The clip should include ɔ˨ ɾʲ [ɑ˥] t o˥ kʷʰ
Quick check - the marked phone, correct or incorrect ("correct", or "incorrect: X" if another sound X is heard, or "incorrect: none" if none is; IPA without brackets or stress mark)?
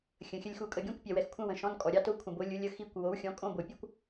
correct